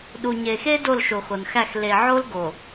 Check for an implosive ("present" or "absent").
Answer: present